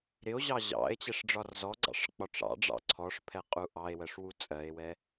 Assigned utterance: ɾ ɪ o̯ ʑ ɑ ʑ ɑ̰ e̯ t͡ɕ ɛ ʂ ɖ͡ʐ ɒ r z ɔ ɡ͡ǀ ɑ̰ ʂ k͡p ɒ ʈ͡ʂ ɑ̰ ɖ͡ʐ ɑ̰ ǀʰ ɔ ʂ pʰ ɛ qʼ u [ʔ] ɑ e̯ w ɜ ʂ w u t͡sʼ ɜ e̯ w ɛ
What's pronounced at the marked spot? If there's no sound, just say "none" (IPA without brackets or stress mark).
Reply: ʔ